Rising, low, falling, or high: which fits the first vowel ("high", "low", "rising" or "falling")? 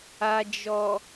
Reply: low